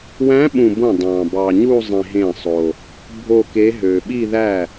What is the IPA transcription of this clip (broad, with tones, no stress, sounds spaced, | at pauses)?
w æ̃˧˥ ɓ ũ˨ b õ˥˩ dˤ ɑ̃˨ b ɑ˨ ɲ u˥˧ zˤ ĩ˨ ɦ ẽ˥˩ sˤ o˨ | bʱ o˥˧ k e˧˥ ɦ ø˨ ɓ i˥˧ ð æ˥˩